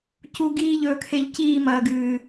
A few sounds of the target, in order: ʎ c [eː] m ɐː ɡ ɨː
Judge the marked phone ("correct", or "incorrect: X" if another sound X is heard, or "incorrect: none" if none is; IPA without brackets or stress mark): incorrect: iː